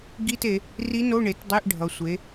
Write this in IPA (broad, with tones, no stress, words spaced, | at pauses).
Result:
ɡi˧˥˧te˩˧ | ri˧˥no˧˥˧ɳe˩˧t dˤe˧˥˧ʔɖʱʌ˩˧ sʷe˩˧